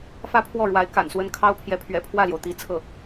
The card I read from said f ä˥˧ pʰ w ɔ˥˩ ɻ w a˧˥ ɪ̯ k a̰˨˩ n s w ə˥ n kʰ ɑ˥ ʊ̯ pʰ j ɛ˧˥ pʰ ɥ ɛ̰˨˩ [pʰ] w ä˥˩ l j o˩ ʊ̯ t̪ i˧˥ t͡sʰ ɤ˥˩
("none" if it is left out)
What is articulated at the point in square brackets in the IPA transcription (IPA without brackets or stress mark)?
pʰ